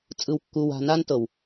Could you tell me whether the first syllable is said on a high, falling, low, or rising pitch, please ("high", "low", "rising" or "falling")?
low